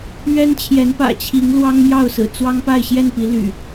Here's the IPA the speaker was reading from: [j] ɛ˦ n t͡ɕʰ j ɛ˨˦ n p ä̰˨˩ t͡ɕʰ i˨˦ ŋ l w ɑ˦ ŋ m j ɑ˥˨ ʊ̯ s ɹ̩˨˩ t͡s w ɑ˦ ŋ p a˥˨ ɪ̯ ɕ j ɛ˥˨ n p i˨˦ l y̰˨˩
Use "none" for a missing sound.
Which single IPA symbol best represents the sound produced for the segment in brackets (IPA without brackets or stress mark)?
ɥ